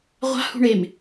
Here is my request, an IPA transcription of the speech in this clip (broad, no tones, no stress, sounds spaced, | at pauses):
ʁʷ a̤ h ṳ ɳ e m